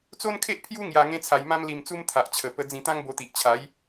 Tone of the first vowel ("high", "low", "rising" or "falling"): high